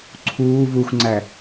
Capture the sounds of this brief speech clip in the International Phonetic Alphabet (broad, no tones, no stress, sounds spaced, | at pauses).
ǀʰ uː v u xʷ ŋ͡ǀ æ